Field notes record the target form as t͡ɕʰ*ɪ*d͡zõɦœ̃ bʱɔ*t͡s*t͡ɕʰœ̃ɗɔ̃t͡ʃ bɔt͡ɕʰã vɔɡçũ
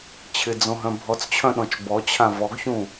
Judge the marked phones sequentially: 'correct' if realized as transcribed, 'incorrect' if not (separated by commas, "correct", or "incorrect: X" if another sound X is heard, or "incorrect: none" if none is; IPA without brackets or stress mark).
correct, correct